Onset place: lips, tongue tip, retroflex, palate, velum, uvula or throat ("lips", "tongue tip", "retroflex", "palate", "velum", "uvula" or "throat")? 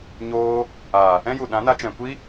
palate